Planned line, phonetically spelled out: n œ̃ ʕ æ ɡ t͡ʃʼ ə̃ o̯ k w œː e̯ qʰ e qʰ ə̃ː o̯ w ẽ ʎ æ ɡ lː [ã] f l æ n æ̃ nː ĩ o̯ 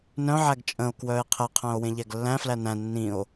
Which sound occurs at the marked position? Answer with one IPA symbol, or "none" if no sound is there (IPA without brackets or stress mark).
æ̃